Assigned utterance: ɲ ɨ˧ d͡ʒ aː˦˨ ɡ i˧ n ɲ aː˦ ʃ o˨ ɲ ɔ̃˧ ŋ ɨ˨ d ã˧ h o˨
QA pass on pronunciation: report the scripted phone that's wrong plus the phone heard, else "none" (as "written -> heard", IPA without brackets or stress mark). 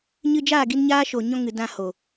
none